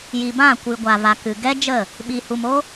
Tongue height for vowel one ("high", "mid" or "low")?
high